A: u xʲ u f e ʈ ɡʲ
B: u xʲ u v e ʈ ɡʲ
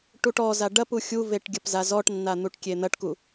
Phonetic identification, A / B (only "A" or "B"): B